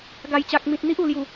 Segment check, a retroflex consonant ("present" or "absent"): absent